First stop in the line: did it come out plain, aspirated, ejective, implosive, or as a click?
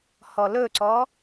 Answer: click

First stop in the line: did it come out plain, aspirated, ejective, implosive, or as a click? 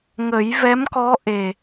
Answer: plain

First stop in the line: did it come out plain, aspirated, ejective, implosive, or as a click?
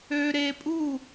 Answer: ejective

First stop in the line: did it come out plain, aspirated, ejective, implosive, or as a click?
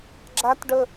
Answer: click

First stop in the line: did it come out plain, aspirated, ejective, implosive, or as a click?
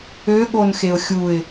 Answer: implosive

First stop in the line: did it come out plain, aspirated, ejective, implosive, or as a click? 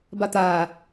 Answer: plain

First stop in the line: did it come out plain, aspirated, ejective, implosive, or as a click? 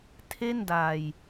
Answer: aspirated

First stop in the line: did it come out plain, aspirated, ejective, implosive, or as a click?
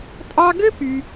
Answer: ejective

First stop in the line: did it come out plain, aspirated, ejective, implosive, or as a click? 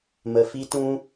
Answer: plain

